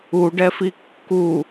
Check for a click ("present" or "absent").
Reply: absent